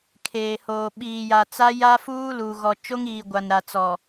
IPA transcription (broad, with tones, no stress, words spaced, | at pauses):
kʰeː˨hoː˨ ɓiː˨ja˨ t͡sa˦ ja˦fuː˦ luː˨ ɣɔ˨t͡ʃo˦ŋiː˨ ɡʷa˨nɾa˨t͡sɔ˨